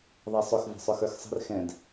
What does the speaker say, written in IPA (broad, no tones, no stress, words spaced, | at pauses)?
ðˤɛsˤʊx və̤sˤʊxə˞xsˤə̤r xɛ̃d